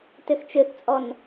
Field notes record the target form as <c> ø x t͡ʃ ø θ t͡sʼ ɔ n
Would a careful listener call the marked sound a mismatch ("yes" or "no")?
yes